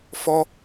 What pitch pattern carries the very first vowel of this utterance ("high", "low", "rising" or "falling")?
high